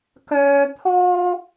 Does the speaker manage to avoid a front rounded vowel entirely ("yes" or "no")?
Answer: no